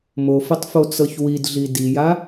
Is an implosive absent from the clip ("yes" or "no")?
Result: yes